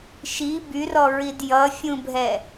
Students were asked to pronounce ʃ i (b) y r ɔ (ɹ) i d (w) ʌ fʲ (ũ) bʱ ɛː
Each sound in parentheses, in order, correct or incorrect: correct, correct, incorrect, correct

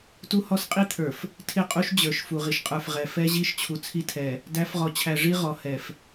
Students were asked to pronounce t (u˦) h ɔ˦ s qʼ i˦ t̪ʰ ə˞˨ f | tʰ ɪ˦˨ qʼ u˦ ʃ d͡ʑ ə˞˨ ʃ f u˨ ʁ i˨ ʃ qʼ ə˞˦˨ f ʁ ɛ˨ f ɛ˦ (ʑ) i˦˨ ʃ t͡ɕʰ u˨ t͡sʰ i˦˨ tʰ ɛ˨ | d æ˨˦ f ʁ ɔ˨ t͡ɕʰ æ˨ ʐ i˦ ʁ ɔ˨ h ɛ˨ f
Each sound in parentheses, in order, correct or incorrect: correct, correct

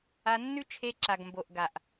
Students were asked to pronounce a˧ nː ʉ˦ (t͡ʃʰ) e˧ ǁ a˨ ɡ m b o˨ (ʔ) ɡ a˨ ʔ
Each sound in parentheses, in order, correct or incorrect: correct, correct

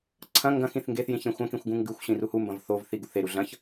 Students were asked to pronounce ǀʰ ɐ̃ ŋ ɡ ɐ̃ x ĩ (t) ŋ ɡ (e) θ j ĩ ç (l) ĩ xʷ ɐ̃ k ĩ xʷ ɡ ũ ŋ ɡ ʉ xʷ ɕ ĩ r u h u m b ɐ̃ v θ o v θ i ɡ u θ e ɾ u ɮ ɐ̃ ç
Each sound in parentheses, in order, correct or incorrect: incorrect, correct, incorrect

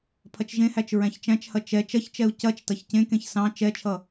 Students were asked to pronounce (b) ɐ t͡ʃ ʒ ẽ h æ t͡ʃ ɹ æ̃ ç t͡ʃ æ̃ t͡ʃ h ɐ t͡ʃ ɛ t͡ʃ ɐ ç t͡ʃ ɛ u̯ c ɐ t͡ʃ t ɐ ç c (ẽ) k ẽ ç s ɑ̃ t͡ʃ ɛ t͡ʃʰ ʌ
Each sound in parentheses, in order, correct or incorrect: incorrect, correct

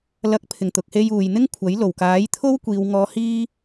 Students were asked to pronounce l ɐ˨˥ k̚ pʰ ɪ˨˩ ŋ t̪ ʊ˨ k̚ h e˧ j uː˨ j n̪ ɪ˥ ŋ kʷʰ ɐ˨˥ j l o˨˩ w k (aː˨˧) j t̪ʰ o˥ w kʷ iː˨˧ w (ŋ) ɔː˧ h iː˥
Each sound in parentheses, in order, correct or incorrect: incorrect, correct

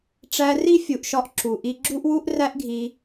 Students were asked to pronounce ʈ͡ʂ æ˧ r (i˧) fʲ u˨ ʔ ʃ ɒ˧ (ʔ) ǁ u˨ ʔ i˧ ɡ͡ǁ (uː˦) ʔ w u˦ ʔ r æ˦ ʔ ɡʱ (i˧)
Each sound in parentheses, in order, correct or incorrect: incorrect, correct, incorrect, correct

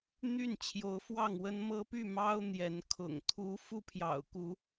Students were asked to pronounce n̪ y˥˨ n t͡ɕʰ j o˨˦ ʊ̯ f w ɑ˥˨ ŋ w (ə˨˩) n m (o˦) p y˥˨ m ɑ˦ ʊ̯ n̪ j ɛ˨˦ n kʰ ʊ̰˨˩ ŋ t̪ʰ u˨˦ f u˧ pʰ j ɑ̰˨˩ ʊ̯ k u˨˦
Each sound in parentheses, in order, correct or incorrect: incorrect, incorrect

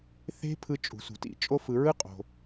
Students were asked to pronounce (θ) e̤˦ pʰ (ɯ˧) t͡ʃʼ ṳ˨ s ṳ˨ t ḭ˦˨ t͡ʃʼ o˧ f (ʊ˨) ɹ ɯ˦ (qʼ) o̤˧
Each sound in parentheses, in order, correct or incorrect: correct, correct, incorrect, correct

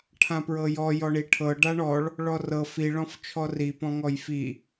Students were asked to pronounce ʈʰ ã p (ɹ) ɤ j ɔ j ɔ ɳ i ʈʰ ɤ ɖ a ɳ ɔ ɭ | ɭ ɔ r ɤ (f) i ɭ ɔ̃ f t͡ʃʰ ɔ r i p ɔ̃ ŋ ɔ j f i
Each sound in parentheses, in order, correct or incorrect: correct, correct

